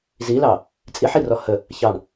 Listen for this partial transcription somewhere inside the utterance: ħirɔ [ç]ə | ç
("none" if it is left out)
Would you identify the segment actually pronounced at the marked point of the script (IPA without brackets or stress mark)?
h